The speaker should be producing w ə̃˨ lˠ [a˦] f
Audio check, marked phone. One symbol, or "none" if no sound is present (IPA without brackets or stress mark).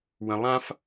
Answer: ã˦